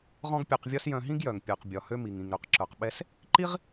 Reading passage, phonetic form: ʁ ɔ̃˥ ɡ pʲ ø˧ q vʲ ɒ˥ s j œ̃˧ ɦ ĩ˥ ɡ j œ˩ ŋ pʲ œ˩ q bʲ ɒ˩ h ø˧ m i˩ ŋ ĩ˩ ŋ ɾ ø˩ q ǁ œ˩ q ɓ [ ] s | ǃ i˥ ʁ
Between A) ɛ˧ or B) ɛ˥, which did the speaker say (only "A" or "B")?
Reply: A